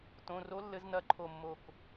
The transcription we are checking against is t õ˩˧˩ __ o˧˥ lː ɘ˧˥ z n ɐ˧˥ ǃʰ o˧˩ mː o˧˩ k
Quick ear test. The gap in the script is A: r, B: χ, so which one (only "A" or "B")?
A